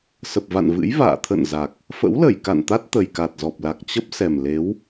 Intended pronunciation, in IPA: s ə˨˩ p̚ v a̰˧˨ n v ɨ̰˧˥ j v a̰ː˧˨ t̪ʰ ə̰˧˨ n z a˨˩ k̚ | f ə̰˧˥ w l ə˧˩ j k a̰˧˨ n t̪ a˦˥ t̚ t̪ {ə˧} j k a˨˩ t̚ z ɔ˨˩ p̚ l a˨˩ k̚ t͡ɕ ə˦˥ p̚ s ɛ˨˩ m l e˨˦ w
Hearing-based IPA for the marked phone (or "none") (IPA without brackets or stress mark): ə˨˩